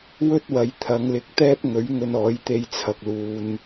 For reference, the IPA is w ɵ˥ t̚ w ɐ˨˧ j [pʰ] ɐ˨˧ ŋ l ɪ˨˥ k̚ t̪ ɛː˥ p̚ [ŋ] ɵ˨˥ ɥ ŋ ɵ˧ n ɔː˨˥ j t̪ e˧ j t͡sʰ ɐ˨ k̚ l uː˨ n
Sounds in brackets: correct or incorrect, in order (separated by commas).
incorrect, correct